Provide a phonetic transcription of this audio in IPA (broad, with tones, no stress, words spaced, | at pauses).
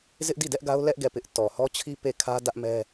zɪ˦ʔdi˦˨dɛ˦ʔ ɡa˦ʊ̯ lɛ˦ʔ ɡɛ˦˨pɪ˦ʔ tɔ˨hɔ˦t͡ɕʰi˦ pe˦˨kʰä˦ dä˦ʔmɛ˦